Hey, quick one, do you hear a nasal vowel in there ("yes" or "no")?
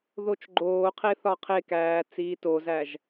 no